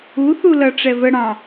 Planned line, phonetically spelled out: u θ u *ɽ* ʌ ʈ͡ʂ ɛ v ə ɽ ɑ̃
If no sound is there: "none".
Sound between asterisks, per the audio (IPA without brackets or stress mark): l